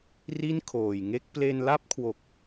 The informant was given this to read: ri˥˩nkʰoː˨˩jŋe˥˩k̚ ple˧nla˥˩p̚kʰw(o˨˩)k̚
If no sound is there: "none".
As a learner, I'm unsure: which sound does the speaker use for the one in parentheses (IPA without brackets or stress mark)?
o˨˩